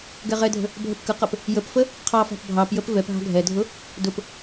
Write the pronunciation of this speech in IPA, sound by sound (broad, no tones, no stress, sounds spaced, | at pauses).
ɡ ɛ ʁ ɛ dʱ ə̤ | bʱ ə p k ə q ʌ p | j ə p f ə | qʰ ɑ f ɑ̤ p bʱ ɑ p j ə p v ɛ p ɦ ɑ̤ ɡʱ ɛ dʱ ʊ | d ʊ p